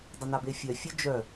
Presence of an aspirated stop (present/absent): absent